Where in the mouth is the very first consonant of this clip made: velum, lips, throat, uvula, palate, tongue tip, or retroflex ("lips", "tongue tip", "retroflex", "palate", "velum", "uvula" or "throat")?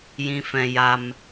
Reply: palate